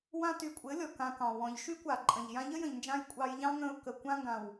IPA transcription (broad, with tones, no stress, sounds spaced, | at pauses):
w ã˧ t y˨ kʷʼ ɘ˨˦ lʲ ɔ˨ k ã˧ k ɑ̃˨ w ɔ̃˨ ʎ ʃ y˦ kʷ a˨ ǃʼ ə̃˨ ʎ j ã˧ ʎ ə˦ j ə̃˨ ʎ n d͡ʒ ã˧ j kʷʼ ɑ˧ j ʎ ɑ̃˦ ŋ ə̃˧ ʊ̯ k ə˨ kʷ ã˦ ŋ ɡ ã˨ w